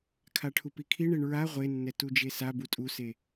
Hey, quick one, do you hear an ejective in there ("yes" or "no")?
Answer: yes